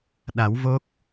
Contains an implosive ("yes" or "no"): yes